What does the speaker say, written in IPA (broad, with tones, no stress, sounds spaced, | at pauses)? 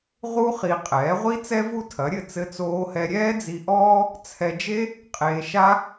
ʁ u˥ χ i˧ qʼ ɛː˩˥ ʁʷ i˥ t͡s ɛ˥ v u˥ tʰ ɐ˩˥ ɾʲ ɘ˥˩ t͡s ɘ˧ t͡s oː˧ h ɛ˧ ɾʲ ɛː˥ d͡z i˧ ʔ ɔː˥ | t͡sʰ ɛ˧ d͡ʒ e˥ | qʼ eː˧ ʃ a˥